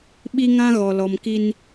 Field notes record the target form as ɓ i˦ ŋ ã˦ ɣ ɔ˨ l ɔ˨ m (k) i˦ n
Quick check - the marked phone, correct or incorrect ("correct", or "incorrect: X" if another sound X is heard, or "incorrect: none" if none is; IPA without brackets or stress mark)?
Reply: correct